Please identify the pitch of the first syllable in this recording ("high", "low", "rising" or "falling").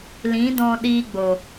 rising